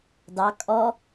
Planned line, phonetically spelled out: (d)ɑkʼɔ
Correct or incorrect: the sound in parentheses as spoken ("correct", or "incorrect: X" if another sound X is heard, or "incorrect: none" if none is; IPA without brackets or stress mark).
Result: correct